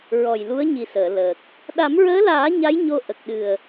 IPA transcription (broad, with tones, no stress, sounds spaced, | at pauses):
ɹ ɔ˨˩ j l u˧˥ ə̯ ɲ i˨˩ s əː˨˩˨ l əː˨˩ k̚ | ɗ a˨˩˦ m ɹ əː˧˥ l aː˨˩˦ ɲ a˧˥ j ɲ o˧ ʔ ə˨˩ k̚ ɗ ɨ˨˩ ə̯